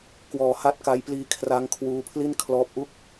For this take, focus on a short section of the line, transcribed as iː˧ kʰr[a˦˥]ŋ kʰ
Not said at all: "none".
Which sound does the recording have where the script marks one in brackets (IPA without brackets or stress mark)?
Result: a˦˥